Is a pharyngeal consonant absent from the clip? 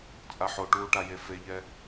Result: no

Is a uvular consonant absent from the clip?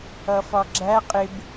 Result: no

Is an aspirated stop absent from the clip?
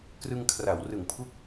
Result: no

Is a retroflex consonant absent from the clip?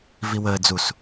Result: yes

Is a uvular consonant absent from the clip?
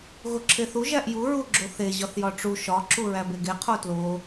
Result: no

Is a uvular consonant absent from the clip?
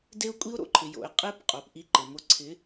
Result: no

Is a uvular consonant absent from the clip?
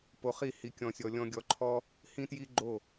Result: no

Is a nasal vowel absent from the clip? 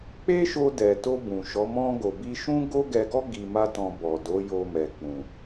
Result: no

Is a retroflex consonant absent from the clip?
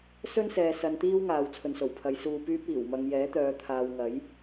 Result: yes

